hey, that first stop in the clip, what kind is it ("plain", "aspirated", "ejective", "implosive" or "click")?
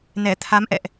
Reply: aspirated